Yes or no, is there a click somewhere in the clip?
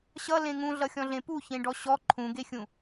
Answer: yes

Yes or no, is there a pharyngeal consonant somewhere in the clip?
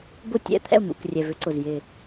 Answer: no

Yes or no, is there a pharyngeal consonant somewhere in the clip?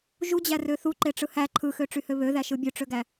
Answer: no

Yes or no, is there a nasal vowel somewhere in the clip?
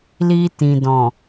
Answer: yes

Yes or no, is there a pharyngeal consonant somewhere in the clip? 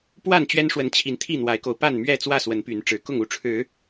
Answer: no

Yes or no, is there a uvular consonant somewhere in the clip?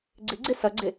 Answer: no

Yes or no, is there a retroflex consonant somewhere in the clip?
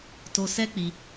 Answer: no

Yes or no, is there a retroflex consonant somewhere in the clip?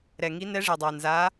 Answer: yes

